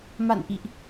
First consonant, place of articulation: labial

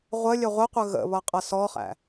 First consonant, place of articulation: uvular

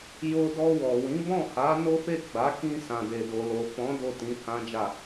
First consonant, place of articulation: palatal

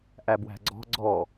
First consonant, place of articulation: glottal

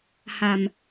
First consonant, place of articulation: glottal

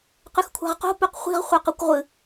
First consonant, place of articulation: uvular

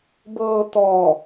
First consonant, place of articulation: labial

